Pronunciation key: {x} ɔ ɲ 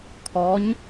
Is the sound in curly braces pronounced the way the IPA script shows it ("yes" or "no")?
no